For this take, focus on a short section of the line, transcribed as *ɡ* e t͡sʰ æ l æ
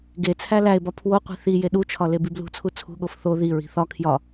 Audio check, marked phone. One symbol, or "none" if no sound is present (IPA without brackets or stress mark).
ɡ